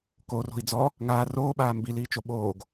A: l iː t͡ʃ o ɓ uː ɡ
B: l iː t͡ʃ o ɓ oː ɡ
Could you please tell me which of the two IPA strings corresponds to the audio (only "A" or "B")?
B